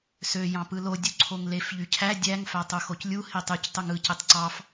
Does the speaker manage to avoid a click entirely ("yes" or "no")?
no